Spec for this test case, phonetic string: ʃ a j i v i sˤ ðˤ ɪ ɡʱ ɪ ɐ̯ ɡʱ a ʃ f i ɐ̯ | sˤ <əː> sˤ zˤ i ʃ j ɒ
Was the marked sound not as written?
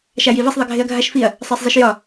no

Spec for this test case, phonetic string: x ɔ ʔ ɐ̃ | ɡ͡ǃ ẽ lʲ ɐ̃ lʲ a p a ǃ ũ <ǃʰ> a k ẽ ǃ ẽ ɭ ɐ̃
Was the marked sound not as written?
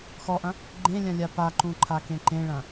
no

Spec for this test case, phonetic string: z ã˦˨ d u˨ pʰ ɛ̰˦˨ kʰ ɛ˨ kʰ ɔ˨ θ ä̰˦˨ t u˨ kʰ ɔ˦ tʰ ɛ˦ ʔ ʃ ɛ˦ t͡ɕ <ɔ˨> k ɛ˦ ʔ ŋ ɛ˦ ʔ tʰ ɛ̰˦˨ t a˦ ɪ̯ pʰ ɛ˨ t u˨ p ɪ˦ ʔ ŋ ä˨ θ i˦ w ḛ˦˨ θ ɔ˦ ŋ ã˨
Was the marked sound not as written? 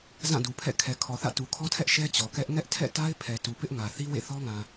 no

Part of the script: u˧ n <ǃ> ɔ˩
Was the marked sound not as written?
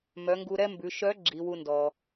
yes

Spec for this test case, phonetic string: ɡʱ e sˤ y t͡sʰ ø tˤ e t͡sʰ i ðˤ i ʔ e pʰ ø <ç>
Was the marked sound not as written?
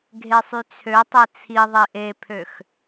yes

